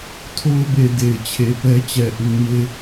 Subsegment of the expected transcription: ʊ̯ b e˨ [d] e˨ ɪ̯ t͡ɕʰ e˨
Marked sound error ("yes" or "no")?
no